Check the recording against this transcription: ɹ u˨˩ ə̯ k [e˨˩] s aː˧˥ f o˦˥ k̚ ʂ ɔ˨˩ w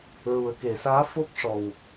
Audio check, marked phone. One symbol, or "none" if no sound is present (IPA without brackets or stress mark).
e˨˩˨